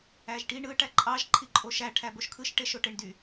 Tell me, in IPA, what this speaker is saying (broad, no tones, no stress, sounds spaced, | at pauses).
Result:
æ ʒ ʈ i ɳ ɯ ʈ æ ǃʼ ɑ ʒ ǃʰ i ǃʼ o ʃ æ ʈʰ æ b o ʃ kʰ ɯ ʃ ʈ e ʃ o ʈ e ɳ d y